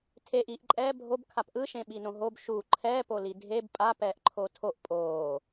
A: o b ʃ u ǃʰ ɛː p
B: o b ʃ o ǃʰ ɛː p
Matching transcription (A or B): A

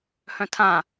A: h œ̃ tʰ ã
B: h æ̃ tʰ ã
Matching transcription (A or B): A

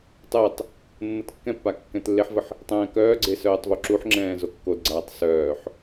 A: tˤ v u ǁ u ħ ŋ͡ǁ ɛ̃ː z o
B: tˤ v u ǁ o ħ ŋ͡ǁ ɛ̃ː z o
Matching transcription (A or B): A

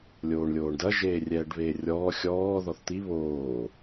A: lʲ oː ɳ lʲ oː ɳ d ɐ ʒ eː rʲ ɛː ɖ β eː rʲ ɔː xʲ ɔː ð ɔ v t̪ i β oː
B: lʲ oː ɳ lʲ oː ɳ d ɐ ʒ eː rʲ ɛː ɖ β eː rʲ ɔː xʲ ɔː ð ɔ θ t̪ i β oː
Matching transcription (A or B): B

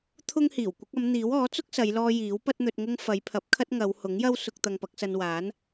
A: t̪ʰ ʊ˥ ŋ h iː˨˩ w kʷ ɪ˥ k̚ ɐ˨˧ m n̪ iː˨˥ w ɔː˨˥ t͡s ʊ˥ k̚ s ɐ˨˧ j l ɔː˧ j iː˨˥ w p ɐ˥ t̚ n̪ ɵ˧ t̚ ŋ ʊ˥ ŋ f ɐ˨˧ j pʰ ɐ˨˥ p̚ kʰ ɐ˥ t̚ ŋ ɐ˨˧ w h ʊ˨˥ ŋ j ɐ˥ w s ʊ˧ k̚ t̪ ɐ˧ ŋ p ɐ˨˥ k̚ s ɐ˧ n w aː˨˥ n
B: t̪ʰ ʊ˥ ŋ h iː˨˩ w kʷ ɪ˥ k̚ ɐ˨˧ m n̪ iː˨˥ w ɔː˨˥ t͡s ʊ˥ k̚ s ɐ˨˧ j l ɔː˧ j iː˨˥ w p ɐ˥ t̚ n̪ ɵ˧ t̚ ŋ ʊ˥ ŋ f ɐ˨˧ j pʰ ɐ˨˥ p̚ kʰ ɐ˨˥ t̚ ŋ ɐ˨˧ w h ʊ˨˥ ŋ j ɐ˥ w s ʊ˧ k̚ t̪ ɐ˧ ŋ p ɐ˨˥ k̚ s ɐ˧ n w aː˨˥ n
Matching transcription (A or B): A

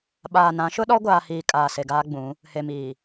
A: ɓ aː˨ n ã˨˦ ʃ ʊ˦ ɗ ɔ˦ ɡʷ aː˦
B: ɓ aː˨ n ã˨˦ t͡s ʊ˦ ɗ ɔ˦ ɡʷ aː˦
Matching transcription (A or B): A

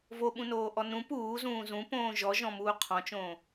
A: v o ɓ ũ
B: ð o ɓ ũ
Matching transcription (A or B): A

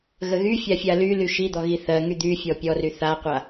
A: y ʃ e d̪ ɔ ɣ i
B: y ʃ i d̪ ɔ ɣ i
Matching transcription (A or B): B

